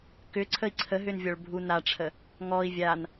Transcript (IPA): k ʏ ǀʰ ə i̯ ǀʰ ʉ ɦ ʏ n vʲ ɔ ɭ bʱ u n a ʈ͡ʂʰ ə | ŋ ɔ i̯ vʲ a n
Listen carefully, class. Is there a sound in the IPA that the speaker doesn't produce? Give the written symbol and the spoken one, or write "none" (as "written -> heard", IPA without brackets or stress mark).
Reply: ʉ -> ə